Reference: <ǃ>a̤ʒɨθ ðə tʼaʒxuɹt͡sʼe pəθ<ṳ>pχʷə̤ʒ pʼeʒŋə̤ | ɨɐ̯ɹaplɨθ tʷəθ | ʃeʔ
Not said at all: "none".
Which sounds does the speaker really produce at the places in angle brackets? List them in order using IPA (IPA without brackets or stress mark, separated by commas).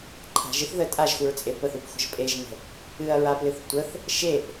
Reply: ǃʰ, u